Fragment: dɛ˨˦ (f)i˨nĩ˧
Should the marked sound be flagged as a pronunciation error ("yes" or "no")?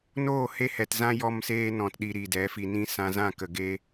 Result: no